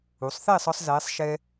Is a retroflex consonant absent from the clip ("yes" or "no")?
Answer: yes